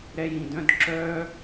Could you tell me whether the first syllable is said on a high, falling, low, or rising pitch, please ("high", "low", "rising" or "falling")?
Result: high